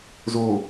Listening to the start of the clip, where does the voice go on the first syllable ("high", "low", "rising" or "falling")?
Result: low